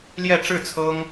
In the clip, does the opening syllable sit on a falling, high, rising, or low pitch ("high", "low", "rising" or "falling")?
falling